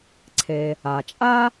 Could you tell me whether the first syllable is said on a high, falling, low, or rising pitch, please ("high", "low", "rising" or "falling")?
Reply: low